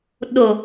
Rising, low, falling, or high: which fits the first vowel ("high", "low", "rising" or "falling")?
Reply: low